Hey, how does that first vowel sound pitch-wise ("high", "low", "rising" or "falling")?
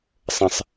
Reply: low